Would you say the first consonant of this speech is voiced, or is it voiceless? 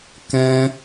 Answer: voiceless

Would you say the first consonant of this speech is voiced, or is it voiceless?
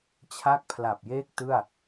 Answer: voiceless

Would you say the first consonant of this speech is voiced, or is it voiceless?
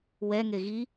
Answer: voiced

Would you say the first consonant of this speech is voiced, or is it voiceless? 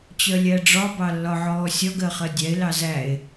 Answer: voiceless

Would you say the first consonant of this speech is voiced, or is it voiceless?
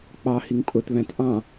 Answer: voiceless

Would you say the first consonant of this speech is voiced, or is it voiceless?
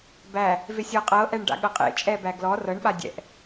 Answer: voiced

